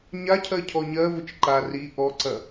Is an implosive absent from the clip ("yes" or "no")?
yes